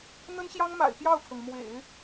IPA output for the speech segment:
n̪ə˥nɕjɑ˥ŋma̰˨˩ɪ̯ pjɑ˥˩ʊ̯kʰɤ˩ŋmwḛ˨˩˦ɪ̯

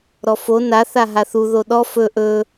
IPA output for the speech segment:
ɾɔfo na θaɦaθu ðoɗɔ fɵ ʔɵ

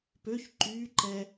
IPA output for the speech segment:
pøç ǃyːǃɛ

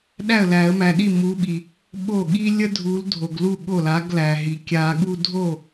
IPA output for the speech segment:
ɗæ˥˩ə̯læ˨˩˦ə̯mæ˨ɗi˥˩ mu˨˥ɓi˨ | ɓo˥˩ɠi˥ lʲə˥dʱu˨˥l dʱo˨ɡlu˥˩ ɠo˥˩la˨˥ɡlæ˨ɦi˨ kʲa˨˩˦ɠu˥˧ dʱo˥˩

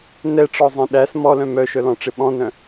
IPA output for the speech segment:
nɛʈ͡ʂɔzˤẽ ɗæs mɔlœ̃ mœʃœlɔ̃ʈ͡ʂɪ ɓɔ̃nœ̃

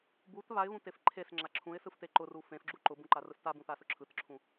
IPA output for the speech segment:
but βaɪ̯βũtef ǃʰesŋ͡ǁa ǁʰũɪ̯sɯfte ǃʊru fẽfɡ͡ǁu ǃʊbũǃarɯs tabũθasʊ ǁʰɯtǁʰũ

